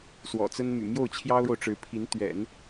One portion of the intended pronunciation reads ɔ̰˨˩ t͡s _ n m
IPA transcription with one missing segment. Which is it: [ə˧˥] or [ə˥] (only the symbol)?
ə˥